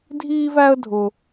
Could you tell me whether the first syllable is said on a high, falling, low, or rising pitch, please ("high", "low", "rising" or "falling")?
high